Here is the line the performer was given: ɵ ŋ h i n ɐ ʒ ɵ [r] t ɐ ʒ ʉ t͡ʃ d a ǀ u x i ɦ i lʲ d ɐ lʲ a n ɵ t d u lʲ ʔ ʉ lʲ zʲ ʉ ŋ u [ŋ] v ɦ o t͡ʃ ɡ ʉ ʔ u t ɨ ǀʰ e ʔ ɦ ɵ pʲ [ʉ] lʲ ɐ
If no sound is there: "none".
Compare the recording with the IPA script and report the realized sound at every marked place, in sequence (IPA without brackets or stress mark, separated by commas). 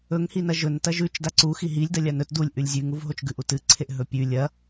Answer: n, none, ʉ